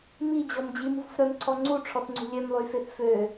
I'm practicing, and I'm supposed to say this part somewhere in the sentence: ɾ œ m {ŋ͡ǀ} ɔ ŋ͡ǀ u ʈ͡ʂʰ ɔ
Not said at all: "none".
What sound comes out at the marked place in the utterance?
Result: ǀʰ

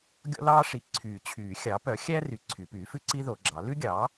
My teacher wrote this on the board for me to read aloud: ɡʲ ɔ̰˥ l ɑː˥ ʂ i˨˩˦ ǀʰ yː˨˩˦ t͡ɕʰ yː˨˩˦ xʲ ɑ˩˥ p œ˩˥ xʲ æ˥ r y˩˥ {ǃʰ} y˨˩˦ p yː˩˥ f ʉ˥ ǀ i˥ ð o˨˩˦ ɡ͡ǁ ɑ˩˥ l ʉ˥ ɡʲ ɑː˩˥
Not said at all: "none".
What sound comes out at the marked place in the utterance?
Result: ǀʰ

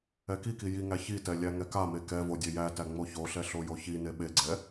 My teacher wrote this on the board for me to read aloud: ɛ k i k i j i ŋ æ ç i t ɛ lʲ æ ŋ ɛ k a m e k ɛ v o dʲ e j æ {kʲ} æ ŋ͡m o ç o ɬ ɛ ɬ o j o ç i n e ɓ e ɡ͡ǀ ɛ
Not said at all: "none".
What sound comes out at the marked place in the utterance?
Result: t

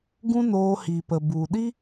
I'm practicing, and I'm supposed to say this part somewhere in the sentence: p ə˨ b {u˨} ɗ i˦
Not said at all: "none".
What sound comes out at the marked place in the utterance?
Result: u˨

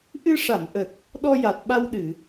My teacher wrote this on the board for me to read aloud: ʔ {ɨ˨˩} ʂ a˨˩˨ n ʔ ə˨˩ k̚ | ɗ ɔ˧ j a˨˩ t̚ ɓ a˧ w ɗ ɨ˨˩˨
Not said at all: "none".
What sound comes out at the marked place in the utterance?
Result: ɨ˧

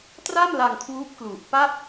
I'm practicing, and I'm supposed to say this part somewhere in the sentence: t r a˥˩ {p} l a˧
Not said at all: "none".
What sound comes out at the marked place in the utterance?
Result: m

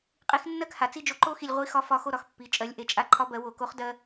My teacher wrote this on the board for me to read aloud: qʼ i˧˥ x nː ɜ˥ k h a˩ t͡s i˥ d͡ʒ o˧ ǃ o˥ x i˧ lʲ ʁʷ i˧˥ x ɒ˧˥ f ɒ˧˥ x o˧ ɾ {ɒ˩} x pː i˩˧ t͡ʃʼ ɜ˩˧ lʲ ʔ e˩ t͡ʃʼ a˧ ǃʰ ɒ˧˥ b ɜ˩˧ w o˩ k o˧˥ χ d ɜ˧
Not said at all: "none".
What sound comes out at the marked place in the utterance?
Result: ɒ˩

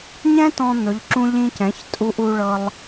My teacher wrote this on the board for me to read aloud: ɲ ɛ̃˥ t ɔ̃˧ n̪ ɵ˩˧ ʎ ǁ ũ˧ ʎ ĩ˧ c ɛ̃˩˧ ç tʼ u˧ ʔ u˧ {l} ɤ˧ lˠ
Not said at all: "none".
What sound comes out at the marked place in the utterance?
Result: ɭ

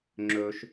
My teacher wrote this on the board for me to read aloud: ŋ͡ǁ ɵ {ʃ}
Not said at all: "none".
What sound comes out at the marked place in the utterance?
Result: ʃ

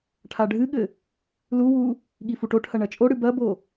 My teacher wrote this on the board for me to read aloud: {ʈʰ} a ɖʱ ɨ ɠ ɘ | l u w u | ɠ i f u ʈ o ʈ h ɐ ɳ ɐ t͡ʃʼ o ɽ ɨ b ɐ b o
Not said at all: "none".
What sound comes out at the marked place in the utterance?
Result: ʈʰ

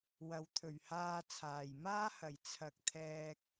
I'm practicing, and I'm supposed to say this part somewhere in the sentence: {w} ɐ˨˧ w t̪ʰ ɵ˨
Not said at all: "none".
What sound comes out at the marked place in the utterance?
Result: w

